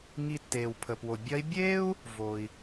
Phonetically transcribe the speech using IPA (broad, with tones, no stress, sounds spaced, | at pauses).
ŋ i˧ tː eː˩ w pʰ ə˩ p w o˩ bʲ ɐ˧˥ i̯ bʲ eː˥ u̯ | v o˩ i̯